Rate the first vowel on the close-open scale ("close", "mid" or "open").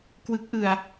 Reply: close